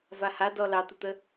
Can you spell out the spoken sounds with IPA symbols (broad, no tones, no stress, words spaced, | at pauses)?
vahadɔ lɑt̪ut̪ə